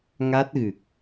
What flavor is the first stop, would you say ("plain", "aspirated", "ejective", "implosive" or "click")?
plain